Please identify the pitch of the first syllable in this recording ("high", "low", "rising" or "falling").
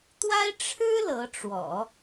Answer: high